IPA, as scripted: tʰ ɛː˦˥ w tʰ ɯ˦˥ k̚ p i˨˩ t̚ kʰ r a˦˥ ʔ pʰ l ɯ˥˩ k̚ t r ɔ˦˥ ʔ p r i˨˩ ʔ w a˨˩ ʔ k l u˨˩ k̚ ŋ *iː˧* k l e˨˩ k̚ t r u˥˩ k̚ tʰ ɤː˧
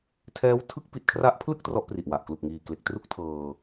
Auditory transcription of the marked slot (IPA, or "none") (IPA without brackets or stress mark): iː˨˩